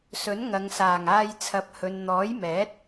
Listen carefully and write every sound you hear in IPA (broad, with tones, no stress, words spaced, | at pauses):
sɵ˨˥nŋɐ˨ŋsaː˨˩ŋ aː˧jt͡sʰɐ˨˥p̚hɵ˨n n̪ɔː˨˥jmɛː˨˥t̚